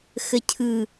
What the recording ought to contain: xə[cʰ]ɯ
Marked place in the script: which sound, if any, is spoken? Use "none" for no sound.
cʰ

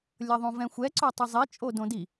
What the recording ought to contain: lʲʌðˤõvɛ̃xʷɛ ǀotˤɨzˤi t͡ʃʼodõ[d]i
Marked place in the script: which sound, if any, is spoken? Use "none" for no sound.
d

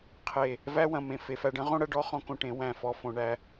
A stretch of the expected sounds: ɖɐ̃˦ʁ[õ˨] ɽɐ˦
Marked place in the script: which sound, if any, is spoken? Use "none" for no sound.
õ˦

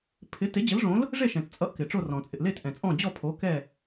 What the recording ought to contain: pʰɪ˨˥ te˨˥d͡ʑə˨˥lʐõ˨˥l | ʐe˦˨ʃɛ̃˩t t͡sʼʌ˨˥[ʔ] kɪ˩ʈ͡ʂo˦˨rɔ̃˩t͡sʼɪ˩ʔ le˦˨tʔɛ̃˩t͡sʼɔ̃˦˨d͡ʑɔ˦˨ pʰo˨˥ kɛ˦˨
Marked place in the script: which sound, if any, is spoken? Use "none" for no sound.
ʔ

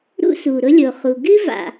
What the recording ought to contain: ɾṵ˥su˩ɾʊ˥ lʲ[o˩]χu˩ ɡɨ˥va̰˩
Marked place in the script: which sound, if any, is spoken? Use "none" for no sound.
o˩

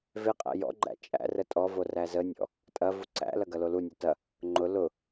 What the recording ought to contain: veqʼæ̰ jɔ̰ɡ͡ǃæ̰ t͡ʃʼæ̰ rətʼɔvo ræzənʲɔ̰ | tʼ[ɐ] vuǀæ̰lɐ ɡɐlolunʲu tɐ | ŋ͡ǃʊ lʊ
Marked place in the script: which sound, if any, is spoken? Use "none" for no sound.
ɐ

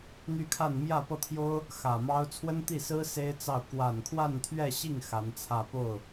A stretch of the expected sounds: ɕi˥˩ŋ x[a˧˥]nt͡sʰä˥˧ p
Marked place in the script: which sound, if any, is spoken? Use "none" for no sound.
a˧˥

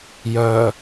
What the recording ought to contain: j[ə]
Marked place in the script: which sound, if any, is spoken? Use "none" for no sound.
œ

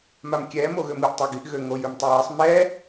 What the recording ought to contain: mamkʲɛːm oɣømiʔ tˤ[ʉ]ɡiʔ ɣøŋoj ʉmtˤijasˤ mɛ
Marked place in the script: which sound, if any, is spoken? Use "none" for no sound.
ø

